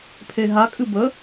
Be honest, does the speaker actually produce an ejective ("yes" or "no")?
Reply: yes